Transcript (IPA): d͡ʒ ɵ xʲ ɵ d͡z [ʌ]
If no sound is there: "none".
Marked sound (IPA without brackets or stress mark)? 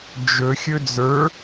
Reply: ə˞